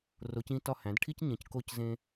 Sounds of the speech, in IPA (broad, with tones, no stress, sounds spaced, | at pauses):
r o˩˧ c ĩ˧˩ t ɒ˧˩ h æ̃˩˧ d ʈʰ i˧ c ɲ ẽ˩˧ c k o˧ c z ẽ˧